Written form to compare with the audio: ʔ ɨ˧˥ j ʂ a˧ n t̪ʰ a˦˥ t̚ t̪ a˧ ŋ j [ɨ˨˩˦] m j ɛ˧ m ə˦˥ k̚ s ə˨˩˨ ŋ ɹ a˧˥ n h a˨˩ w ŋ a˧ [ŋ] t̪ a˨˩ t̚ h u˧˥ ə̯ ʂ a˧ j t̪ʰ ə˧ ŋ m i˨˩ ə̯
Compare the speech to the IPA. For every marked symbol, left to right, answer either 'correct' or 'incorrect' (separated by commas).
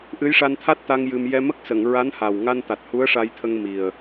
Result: incorrect, incorrect